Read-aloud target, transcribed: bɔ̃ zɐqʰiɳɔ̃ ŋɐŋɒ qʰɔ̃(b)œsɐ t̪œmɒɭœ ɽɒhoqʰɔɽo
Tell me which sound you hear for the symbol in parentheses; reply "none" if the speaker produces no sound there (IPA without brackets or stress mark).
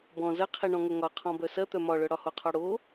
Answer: b